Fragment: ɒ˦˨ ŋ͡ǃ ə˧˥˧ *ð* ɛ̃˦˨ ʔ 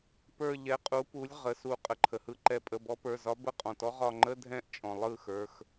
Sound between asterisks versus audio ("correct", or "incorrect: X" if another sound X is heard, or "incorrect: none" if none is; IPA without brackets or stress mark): incorrect: dʱ